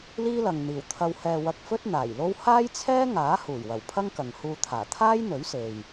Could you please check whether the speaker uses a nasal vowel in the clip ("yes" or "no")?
no